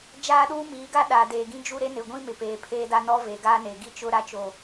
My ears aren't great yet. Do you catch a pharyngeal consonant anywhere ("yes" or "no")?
no